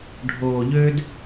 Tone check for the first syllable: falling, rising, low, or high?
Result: low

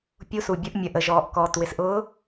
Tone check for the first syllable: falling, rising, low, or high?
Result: rising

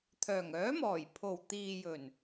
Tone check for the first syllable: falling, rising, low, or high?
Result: low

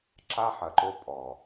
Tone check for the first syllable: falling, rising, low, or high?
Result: high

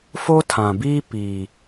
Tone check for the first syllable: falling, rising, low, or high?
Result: high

